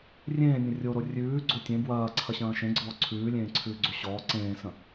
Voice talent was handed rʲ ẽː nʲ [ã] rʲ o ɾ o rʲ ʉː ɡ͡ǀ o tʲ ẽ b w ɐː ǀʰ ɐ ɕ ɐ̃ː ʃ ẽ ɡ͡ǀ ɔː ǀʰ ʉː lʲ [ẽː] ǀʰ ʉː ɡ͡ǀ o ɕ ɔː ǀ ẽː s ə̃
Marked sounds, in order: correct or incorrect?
incorrect: ə̃, correct

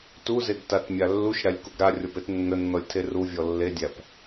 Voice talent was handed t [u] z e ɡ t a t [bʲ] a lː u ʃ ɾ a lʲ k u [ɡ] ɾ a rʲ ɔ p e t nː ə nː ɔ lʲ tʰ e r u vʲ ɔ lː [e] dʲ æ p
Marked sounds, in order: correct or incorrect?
correct, incorrect: mʲ, correct, correct

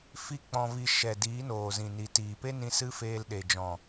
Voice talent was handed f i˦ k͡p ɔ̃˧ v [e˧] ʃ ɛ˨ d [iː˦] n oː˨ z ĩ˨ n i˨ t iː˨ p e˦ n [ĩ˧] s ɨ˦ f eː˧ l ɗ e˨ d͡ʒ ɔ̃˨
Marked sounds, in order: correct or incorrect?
incorrect: i˧, incorrect: iː˨˦, correct

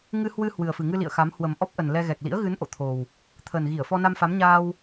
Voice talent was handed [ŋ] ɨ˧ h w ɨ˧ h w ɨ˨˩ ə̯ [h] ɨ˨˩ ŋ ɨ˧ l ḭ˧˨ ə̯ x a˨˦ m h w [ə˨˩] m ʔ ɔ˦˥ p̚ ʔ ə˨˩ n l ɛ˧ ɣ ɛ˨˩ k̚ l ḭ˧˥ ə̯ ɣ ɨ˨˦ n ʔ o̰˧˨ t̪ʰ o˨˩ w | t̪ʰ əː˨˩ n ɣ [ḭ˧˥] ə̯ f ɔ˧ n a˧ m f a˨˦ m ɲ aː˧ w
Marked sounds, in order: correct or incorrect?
correct, incorrect: f, correct, incorrect: i˧˩

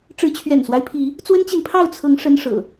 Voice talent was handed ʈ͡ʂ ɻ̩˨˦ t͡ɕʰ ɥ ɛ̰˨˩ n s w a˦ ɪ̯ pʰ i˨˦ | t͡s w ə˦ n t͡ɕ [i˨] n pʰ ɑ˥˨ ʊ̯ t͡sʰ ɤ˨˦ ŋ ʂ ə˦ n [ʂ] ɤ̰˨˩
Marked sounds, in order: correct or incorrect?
correct, correct

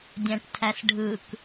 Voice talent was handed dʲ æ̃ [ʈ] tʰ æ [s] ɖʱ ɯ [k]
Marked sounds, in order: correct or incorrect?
correct, correct, correct

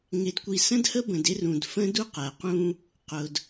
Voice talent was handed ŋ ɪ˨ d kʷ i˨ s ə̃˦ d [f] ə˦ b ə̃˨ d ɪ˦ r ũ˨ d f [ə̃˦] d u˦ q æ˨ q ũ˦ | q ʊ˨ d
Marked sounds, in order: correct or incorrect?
incorrect: h, correct

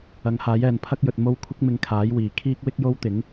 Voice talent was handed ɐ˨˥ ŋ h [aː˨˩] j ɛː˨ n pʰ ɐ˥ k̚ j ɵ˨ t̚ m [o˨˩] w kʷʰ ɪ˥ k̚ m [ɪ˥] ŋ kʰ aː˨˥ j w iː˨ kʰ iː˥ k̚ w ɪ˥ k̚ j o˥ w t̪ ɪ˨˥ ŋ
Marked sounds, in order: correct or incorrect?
incorrect: aː˨˥, incorrect: o˥, incorrect: ɪ˧

